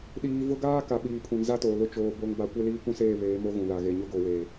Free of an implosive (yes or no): no